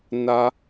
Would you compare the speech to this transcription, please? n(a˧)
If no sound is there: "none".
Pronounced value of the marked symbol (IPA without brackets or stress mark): a˧